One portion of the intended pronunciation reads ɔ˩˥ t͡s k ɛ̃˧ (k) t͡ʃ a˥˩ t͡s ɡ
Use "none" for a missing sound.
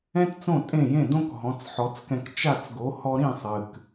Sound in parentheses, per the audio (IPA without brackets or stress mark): k